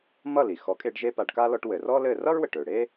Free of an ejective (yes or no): no